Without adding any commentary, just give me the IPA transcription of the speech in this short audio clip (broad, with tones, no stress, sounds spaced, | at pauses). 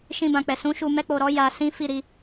ʃ ĩ˧ b ã˨ k͡p ɛ˨ s ũ˨˦ ʃ u˧ m ɛ˦ k͡p o˧ ɾ ɔ˦ j a˧ s ĩ˦ f i˦˨ ɾ i˧